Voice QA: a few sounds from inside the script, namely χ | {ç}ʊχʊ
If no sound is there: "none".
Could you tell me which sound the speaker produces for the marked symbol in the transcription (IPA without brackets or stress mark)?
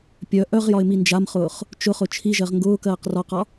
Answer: t͡ʃ